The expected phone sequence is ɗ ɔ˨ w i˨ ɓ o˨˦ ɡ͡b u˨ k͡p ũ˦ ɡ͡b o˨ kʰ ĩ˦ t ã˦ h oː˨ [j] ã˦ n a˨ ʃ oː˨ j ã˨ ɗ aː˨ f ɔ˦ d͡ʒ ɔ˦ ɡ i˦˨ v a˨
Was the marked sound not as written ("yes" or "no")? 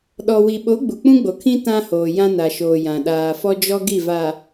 no